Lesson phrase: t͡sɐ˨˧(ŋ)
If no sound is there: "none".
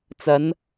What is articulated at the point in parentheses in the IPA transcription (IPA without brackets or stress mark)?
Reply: n